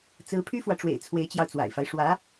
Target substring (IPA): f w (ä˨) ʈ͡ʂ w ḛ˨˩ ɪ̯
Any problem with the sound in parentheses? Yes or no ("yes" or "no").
no